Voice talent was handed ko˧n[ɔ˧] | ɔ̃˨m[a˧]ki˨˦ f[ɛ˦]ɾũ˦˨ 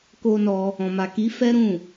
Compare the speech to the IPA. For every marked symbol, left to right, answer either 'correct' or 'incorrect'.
correct, incorrect, correct

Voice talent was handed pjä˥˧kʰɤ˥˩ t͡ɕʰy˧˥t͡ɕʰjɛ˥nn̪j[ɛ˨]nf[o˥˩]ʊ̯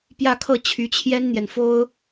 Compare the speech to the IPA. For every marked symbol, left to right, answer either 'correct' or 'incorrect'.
correct, incorrect

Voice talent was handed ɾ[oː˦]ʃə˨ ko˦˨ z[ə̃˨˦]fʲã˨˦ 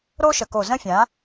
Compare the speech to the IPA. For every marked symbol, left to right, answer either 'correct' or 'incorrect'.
correct, incorrect

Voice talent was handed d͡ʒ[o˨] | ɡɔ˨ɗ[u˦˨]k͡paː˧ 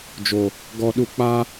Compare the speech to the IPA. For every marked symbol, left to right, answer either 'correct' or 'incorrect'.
correct, incorrect

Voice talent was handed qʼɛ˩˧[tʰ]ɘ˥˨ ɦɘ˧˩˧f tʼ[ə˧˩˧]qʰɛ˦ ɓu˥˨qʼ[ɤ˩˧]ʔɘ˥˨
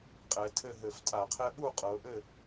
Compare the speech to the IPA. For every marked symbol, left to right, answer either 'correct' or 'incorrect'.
correct, incorrect, correct

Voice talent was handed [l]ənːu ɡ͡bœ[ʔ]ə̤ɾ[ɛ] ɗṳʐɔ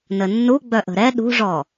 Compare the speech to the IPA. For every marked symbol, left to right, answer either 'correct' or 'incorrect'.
incorrect, correct, correct

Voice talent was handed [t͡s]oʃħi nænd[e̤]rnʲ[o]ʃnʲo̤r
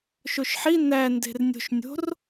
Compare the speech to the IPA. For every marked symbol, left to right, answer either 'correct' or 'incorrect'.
incorrect, correct, incorrect

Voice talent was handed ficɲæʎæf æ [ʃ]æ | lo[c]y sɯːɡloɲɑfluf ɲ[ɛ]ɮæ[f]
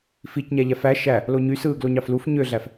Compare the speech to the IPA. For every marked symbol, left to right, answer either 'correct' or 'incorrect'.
correct, incorrect, incorrect, correct

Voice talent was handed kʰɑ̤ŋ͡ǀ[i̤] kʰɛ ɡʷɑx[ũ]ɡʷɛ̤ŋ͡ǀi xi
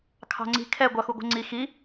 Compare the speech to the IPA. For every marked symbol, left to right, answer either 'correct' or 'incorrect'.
correct, incorrect

